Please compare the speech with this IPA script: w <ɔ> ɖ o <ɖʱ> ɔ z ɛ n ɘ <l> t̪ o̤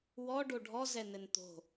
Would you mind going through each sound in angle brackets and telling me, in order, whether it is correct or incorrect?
correct, correct, incorrect

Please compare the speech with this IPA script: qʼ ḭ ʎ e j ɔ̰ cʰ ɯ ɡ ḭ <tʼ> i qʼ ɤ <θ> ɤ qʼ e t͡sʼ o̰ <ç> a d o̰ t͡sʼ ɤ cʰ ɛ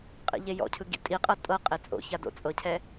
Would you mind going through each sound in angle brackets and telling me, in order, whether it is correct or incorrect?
correct, incorrect, correct

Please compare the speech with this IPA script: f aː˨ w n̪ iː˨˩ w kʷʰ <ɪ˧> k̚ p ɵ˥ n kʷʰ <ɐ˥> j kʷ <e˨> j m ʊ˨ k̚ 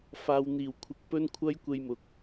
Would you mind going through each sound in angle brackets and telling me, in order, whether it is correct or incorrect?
correct, correct, incorrect

